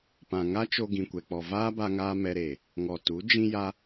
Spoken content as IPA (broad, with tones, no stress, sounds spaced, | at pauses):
p ã˨ ŋ a˦ t͡ʃ o˧ ɡ ĩ˨ kʷ ɛ˨ k͡p ɔ˨ v aː˦ b a˧ ŋ aː˧ m ɛ˧ ɾ eː˨ | ŋ ɔ˨ t u˨˦ d͡ʒ ĩ˧ j a˧